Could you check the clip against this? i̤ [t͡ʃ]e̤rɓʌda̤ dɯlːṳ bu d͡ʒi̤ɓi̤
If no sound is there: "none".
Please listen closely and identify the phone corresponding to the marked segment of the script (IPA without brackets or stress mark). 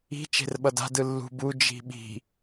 t͡ʃ